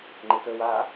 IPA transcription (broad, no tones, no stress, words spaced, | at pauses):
ŋ͡ǃɪt̪əwaː